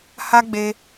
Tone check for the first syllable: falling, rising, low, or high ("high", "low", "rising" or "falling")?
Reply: high